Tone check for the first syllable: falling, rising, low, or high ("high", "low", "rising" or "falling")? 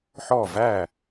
falling